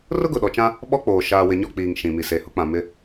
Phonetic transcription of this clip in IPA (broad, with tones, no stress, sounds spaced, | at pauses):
r ʊ˦ ɡ ʊ˨ ɗ ɔ˨ t͡ʃ ã˦ | ɓ ɔ˦ k͡p oː˨ ʃ aː˨ w ɪ˨ ɲ ɔ˦˨ k͡p iː˨ ŋ ʃ ĩ˨ m i˨ s e˨ h ʊ˦ k͡p ã˨ m ɪ˦